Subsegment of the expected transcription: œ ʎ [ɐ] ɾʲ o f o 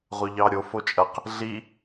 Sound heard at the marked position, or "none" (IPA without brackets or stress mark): ɑ